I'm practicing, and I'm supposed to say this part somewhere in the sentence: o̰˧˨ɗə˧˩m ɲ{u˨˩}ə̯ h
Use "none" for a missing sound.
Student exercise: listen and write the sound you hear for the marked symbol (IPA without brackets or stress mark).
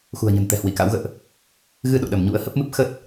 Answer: ṵ˧˥